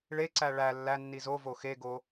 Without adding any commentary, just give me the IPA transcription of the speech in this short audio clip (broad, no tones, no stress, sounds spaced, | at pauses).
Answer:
ɭ e ǀ æ ɭ æ lː æ nː i z o v o x e ɡ o